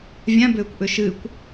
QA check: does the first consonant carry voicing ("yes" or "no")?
yes